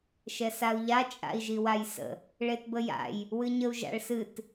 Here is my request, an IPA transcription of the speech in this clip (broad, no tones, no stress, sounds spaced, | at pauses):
ʃ ɛ s a u̯ ʎ a t͡ʃʼ a̰ i̯ ʒ i w a j s ə̰ | ɭ e t b ə j a̰ j | w ɨ ɲ ə u̯ ʒ a̰ ɭ s ɨ t